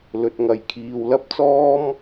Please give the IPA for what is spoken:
l ɵ˨ t̚ ŋ ɐ˨ j kʰ iː˨ w l ɐ˥ p̚ t͡s ɔː˥ m

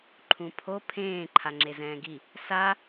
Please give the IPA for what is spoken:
ǃʰ ũ pʰ o pʰ ẽː ǃʰ a ŋ͡ǁ e z ɛ̃ː ɡ i | s a

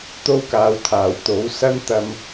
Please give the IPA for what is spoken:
t̪ o˥ w k aː˨˧ w t̪ʰ aː˨˩ w t̪ o˨˥ w s ɐ˥ n t̪ ɐ˧ m

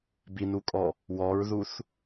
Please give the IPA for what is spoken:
b i n u kʼ ɔ | w ɔ ɹ ð u θ

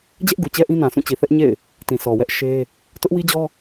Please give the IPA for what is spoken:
d͡ʑ ɛ˦ ʔ ɡ u˨ t͡ɕ ɛ˦ ʔ ĩ˦ n ã˨ sʰ ũ˦˨ t͡ɕ i˨ θ ɛ˦ ʔ ɲ ḛ˦˨ ɪ̯ | t ĩ˨ s ɔ˨ w ɛ˦ ʔ ʃ e˦ | t ʊ˦ ʔ w i˦ d͡ʑ ɔ˦

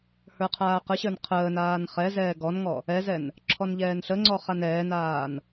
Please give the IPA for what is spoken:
h ə˞ qʰ aː q ə ɕ ə˞ n qʰ əː n aː n χ ɛ z ɛː ɡ ɔ n ŋ ɔ | ɛ z ɛ n | ǁʰ ɔ n ʎ ɛː n ɬ ə ŋ͡ǀ ɔ χ a n ɛː n aː n

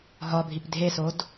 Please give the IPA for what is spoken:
ɦ ɒ bʱ i p dʱ e s o d

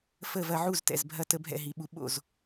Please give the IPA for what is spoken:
f ə˥˨ v ɐ˦ ʕ u˥˨ z t ɛ̰˨ z bʱ ɐ˦ t ə˦ bʱ ɛ̰˥˨ ɦ i˨ ɓ u˨ ɓ o̰˥˨ z

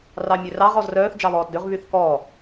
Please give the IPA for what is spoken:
r ɑ mʲ ø r ɑ ʁ ɔ z r œː θ d͡ʒ ɑ β ɔː t d ø ʁ β y θ k ɔː

